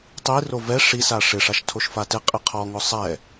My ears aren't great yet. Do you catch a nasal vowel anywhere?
no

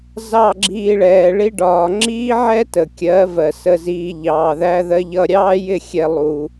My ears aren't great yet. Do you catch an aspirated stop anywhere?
no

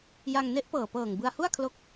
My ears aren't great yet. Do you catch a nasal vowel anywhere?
no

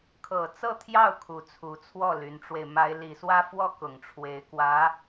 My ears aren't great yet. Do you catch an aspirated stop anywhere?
yes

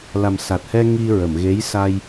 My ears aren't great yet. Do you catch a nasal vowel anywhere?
no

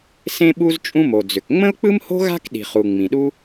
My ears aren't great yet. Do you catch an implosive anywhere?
yes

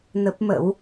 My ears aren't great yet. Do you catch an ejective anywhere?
no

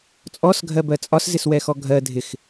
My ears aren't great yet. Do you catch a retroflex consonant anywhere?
no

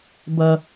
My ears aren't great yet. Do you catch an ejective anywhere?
no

